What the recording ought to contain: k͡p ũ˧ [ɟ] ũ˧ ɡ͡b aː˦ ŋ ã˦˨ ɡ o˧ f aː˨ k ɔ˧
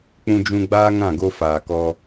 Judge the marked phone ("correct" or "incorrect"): incorrect